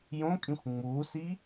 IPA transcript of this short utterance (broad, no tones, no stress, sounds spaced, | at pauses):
j õ kʼ ĩ xʷ ŋ͡m uː s i